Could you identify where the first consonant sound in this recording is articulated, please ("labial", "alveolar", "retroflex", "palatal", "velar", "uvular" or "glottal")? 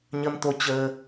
palatal